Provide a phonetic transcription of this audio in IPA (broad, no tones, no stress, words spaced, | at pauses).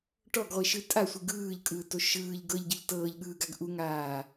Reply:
ʈɔɡʁʷiʃɯ tʼasʷi ɡɯːʎkʼɯːto ʃɯːʎ ɡɤʎɟɯʎ tɤːʎɠɯːɡaɡ ʔuŋaː